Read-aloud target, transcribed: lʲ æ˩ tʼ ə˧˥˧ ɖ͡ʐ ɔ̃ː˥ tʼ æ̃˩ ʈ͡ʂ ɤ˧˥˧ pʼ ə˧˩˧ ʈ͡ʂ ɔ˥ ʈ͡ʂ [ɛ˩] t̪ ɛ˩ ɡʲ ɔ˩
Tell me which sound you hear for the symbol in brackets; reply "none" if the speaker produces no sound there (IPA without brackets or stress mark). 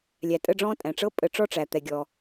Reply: æ˩